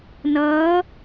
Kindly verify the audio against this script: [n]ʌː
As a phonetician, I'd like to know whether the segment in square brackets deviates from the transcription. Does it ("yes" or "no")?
no